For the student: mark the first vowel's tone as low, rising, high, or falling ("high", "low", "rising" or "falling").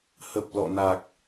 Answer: low